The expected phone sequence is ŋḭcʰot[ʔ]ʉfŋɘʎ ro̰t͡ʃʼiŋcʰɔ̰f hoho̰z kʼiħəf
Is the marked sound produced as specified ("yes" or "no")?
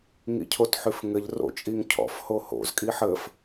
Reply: no